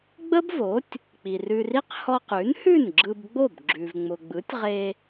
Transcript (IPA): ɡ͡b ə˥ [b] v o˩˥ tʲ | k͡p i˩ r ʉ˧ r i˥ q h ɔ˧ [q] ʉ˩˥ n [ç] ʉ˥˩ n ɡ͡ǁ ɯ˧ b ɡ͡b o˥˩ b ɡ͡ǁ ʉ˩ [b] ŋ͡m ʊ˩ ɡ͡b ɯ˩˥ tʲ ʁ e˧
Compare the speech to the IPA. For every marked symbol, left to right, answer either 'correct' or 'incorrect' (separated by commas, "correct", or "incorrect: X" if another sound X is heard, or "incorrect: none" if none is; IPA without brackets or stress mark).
correct, correct, incorrect: h, incorrect: v